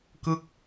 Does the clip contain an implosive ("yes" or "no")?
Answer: no